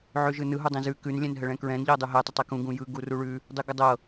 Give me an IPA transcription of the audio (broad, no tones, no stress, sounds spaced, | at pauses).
ʕ ʉ ʒ ɯ n ɯ ɦ u dˤ ĩ z ʉ k ʉ n lʲ ɛ̃ n ɦ ə ɭ ɛ̃ k ɹ ɛ̃ n ʎ ɤ dˤ u ɦ ɛ tˤ ə tˤ ɛ k ũ ɡ ũ j ɯ ɡ u r u ɭ ʉ | dˤ ɯ ɡ ə dˤ ɤ